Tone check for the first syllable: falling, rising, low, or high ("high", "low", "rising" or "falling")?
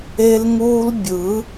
high